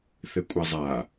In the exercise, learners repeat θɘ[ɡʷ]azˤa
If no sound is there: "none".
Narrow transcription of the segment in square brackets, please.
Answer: kʷʼ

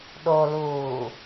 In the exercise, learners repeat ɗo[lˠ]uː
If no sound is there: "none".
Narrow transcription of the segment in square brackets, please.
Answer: l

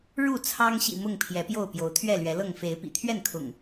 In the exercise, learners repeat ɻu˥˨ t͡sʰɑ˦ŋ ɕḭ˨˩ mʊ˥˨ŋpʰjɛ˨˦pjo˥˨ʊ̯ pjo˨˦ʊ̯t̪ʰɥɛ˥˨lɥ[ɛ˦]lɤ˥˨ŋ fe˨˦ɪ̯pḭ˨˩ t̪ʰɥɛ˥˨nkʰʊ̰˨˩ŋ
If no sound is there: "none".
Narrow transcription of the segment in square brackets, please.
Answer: ɛ˨˦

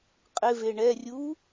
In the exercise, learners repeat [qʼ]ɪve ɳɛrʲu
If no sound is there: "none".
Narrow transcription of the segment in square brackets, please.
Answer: qʼ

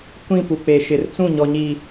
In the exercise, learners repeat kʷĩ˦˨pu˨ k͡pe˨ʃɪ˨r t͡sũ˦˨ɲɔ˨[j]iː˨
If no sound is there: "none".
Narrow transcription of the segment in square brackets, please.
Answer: ɲ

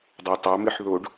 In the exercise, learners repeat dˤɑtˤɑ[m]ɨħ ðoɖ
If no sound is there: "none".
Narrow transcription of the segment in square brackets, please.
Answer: m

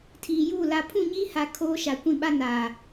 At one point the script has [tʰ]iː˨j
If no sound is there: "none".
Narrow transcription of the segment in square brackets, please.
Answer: tʰ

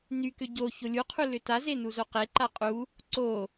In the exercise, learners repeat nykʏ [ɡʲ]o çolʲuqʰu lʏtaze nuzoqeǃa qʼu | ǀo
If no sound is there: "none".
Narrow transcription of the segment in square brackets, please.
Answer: ɟ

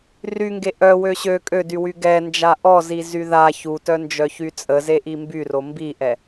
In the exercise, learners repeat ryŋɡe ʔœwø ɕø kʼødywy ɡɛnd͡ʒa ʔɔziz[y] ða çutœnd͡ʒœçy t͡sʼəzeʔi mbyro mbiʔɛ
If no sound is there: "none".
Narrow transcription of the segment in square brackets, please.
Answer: y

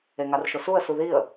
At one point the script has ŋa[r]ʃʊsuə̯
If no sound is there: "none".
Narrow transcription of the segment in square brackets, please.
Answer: r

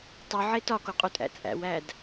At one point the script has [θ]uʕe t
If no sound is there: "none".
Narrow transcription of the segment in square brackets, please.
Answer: tˤ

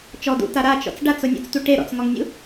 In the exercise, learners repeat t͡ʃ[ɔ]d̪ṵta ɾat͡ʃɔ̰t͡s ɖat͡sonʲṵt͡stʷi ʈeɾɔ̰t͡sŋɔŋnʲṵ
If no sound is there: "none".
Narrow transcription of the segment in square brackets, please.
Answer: ɔ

